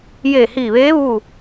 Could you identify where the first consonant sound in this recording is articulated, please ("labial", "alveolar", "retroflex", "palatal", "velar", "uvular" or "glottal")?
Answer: palatal